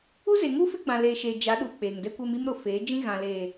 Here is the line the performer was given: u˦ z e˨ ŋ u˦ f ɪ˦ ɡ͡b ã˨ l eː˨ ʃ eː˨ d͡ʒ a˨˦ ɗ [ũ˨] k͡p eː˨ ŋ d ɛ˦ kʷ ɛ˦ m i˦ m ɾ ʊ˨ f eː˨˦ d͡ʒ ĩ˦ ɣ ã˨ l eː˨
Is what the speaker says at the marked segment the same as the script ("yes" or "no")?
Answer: no